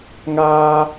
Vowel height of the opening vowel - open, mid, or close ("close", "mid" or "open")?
open